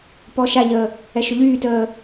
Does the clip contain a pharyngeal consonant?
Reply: no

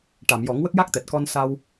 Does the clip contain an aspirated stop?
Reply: no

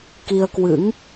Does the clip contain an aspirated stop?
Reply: no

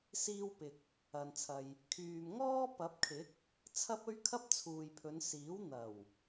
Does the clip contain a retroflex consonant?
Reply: no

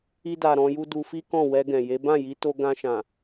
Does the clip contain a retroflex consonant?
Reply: no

